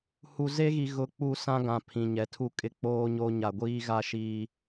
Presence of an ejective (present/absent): present